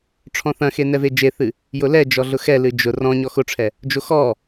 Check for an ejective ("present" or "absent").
absent